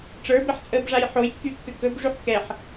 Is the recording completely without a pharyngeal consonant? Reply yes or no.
no